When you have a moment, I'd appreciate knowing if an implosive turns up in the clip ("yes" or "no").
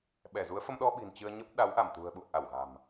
yes